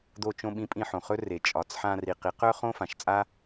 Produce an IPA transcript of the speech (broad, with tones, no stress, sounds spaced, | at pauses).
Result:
d̪ o˧ t͡ʃ õ˧ ɓ ĩ˧˥ pʼ ĩ˧ ħ õ˩ χ ɵ˥ r e˩ t͡ʃʼ ɒ˩˧ t͡s ħ ã˧ r i˩ q i˩˧ q œ˥ χ õ˥ f ã˩˧ ʃ t͡sʼ a˥